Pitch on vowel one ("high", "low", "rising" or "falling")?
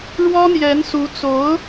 high